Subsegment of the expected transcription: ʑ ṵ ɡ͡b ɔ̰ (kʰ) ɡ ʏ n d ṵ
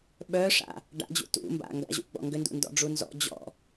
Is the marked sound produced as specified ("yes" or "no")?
no